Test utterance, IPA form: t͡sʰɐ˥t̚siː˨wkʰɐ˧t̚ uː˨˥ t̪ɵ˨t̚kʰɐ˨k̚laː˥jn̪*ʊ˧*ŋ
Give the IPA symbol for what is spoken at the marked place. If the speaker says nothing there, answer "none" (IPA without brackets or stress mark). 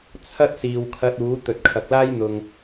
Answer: ʊ˨